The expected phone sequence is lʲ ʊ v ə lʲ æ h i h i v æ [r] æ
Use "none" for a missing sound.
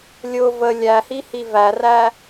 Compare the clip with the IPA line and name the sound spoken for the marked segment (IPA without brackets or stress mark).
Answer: r